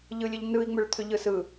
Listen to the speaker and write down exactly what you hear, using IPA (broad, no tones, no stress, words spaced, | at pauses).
ʎɯlʲəʎnɯi̯ ŋ͡mʏɭt̪ʰʏʎɯsɯ